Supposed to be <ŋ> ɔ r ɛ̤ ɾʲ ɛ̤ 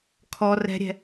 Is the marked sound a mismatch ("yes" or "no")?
yes